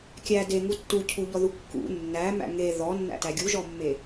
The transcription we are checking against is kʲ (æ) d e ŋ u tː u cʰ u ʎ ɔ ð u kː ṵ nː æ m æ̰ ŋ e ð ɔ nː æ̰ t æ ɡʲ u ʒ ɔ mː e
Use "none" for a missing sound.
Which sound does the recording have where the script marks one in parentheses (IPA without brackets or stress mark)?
æ